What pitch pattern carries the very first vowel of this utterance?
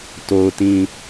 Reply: low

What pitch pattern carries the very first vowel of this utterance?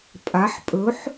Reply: rising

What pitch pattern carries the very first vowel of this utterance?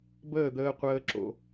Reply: falling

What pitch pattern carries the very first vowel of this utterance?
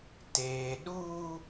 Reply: low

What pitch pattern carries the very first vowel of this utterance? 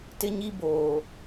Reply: high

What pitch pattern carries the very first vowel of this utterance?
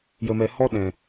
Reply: low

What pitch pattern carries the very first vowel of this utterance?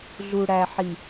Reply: low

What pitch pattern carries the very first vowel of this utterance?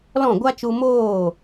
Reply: falling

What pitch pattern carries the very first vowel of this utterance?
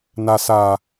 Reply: low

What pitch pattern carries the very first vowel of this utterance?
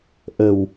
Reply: low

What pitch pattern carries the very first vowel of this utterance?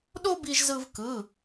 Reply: high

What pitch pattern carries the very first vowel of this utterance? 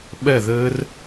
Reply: falling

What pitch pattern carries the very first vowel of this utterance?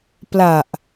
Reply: low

